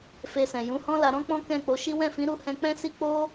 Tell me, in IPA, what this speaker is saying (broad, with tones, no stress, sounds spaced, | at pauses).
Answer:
f e˧ s ɛ̃˨ j ũ˨˦ h ɔ̃˦ l a˧ ɾ ɔ̃˦ k͡p ɔ̃˦ k ɛ̃˦˨ k͡p o˨˦ ʃ i˦ w ɛ̃˦˨ f ĩ˨˦ ɾ u˦˨ h ɛ̃˧ k͡p ɛ̃˦ s i˦ k͡p o˦